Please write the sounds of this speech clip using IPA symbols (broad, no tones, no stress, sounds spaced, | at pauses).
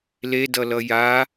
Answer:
l e d ʌ l ʌ j a